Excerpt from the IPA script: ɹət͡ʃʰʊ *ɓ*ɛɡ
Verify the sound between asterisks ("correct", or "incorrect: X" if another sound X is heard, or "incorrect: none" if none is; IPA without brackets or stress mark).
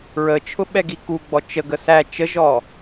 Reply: correct